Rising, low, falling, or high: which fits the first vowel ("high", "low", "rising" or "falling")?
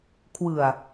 low